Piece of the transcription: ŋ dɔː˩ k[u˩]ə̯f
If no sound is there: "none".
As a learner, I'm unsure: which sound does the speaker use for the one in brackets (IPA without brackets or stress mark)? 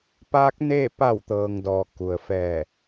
u˩